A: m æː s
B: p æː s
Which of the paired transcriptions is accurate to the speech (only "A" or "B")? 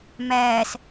A